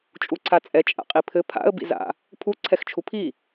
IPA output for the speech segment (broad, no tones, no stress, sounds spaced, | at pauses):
t͡ʃʼ u ǀʰ a t͡sʼ ɛ t͡ʃʼ a̰ qʼ i pʰ ɘ pʰ a̰ ə̯ b ḭ z a̰ | pʰ u ǀʰ ɛ x t͡ʃʰ u pʰ i